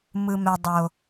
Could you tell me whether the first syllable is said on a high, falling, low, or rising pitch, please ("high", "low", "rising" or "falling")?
low